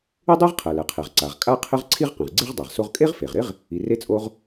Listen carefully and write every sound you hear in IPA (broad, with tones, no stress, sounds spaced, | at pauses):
ɪ˥ dˤ e˥ ʁ qʰ ɛ˩ l ɛ˩ qʰ e˩ ʁ ǀ a˩ ʁ kʼ a˥ qʰ ɪ˥ ʁ ǀʰ i˥ ʁ q ẽ˩ ʁ ɡ͡ǀ i˥ ʁ dˤ a˩ ʁ s o˥ ʁ kʼ e˥ ʁ f e˩ ʁ ɾ ɪ˥ ʁ | i˩ r e˥ t͡sʼ o˥ ʁ